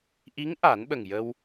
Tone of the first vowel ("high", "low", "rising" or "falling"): rising